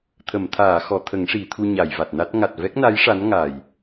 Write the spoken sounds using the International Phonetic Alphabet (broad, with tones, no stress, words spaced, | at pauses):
t̪ʰə˨˩˨mt̪ʰaː˨˩˨xɔ˨˩˨ t̪ʰə˨˩˦ŋʂi˨˩˨t̪ʰu˧ ɲa˨˩˨jva˨˩t̚na˦˥t̚ ŋa˨˩t̚vɛ˦˥k̚na˧˥j ʂa˧˥nŋa˨˩j